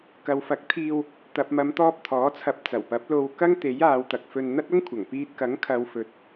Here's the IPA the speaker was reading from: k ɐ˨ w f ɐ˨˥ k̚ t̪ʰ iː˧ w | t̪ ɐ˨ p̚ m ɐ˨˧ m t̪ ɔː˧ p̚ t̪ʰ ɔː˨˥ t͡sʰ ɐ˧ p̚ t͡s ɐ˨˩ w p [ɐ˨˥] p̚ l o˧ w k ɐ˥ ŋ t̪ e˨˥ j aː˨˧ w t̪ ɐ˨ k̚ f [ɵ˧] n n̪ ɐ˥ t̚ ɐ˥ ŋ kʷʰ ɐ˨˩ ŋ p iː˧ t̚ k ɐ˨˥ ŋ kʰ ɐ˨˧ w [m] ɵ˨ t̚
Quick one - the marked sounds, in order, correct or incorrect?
correct, correct, incorrect: f

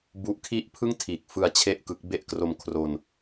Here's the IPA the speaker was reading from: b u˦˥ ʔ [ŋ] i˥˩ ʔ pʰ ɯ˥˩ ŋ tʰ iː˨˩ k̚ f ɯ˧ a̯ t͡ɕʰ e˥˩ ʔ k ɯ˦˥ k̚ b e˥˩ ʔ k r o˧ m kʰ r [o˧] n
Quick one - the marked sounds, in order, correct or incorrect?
incorrect: kʰ, correct

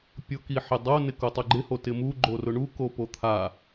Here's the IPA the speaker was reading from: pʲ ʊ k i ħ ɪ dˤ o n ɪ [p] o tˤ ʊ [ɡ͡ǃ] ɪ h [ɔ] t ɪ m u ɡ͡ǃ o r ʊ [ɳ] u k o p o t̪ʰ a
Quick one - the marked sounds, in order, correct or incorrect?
incorrect: k, correct, incorrect: o, correct

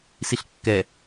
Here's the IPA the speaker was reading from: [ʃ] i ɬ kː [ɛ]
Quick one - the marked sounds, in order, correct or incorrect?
incorrect: s, correct

